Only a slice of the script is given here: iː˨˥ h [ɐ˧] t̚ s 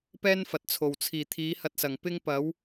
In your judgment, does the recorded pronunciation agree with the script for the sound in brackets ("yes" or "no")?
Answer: yes